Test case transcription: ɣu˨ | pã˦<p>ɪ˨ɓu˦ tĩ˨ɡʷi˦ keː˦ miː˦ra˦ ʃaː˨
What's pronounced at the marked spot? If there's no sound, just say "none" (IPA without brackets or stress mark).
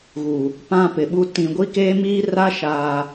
p